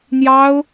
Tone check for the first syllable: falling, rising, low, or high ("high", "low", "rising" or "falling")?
high